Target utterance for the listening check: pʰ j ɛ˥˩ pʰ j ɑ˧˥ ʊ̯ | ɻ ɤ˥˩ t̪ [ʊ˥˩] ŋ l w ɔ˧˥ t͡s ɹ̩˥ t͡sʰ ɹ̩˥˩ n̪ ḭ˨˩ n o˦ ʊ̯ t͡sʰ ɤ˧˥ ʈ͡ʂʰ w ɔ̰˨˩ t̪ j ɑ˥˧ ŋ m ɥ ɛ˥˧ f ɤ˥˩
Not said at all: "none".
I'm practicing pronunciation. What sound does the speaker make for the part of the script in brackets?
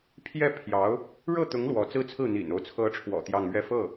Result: ʊ˧˥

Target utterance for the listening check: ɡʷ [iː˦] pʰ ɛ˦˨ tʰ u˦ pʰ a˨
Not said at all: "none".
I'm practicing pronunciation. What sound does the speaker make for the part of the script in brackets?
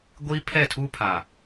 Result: iː˦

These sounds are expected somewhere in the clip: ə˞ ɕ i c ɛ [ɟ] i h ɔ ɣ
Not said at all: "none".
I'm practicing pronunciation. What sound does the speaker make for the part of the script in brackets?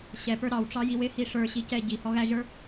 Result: ɟ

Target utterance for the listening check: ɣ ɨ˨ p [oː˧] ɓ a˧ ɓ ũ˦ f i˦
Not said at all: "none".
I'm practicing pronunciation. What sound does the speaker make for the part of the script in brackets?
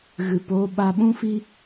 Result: oː˧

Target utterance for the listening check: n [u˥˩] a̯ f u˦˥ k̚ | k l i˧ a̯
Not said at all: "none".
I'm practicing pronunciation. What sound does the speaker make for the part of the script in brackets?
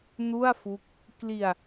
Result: u˥˩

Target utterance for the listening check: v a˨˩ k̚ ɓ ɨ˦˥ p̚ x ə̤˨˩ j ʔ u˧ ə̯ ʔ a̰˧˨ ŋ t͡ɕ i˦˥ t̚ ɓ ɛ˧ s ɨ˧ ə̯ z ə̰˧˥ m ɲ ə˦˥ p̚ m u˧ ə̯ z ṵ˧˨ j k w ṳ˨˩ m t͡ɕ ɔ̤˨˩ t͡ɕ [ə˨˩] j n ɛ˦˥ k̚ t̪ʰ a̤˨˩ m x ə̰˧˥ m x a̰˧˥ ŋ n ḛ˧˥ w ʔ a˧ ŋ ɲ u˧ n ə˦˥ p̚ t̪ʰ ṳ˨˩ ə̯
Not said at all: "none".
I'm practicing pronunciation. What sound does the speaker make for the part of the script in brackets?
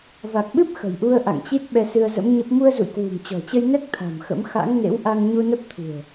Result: ə˧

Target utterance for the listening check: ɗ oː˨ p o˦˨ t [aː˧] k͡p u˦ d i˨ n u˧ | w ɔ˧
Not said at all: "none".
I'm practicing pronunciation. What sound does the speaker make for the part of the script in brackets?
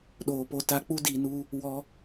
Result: a˧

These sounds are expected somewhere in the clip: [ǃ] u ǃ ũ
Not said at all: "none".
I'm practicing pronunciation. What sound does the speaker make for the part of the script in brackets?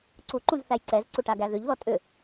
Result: ǀ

